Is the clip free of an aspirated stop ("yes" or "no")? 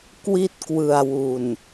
yes